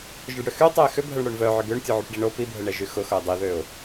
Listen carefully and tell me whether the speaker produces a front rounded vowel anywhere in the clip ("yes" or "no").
yes